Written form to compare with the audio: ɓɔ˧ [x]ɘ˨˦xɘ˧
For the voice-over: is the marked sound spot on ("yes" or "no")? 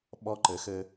no